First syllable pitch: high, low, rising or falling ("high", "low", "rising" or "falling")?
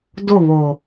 falling